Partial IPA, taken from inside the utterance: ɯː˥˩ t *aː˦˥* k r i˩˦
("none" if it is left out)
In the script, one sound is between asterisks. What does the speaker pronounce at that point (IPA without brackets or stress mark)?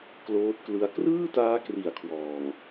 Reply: aː˦˥